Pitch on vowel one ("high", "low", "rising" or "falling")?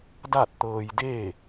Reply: falling